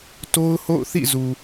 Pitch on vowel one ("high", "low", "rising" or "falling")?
high